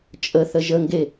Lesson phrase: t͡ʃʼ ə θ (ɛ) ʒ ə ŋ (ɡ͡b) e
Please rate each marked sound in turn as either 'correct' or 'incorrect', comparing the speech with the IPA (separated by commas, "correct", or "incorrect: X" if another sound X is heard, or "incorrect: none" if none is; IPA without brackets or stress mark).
incorrect: ə, incorrect: ɡ